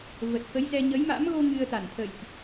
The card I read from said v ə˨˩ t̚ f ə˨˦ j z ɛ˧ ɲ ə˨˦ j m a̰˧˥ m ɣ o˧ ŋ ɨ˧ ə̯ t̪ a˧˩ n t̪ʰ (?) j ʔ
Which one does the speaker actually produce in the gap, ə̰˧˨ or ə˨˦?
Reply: ə̰˧˨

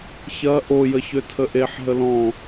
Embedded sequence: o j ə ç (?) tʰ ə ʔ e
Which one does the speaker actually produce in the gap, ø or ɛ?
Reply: ø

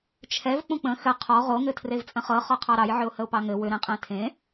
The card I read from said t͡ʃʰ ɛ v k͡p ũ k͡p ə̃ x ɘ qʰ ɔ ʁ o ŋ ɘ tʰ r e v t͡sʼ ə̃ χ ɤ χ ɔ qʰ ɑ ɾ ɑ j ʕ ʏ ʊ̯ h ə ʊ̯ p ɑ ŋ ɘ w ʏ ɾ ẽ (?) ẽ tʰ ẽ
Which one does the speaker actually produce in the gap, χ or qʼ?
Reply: qʼ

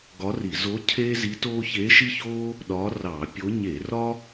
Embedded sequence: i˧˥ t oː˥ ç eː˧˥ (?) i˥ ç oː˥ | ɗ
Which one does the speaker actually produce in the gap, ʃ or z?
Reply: ʃ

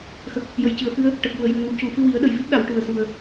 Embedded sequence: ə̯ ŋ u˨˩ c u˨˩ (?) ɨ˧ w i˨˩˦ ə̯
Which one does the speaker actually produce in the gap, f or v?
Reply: f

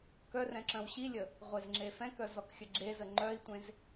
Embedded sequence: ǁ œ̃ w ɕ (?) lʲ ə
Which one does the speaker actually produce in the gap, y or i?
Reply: i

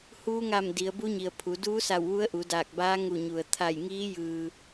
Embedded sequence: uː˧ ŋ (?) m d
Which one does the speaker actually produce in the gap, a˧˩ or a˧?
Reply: a˧˩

